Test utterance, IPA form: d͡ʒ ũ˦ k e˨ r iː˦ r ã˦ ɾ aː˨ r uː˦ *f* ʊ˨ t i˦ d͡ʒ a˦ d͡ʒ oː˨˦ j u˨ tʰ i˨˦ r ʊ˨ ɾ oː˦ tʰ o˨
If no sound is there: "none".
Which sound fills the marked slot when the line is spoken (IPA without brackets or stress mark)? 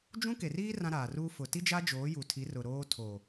f